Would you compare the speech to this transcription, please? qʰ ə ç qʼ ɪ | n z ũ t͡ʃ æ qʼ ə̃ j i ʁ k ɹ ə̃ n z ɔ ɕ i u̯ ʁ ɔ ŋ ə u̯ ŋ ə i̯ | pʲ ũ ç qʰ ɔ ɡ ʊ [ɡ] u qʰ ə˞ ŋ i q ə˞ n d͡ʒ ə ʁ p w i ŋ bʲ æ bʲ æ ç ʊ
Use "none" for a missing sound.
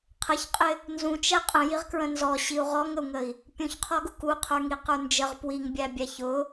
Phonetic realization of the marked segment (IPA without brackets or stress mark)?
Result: k